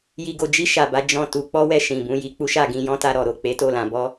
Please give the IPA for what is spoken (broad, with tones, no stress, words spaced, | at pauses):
ji˧ɡo˧d͡ʒi˦ ʃa˧ba˦ d͡ʒɔ̃˦˨ tu˧k͡pɔ˦wɛ˧ ʃĩ˨bũ˧ji˧ k͡pu˦ʃa˦˨ɡĩ˧jɔ̃˦ ta˧ɾɔ˨ ɾo˨k͡pe˨˦ to˦˨lã˧bɔ˦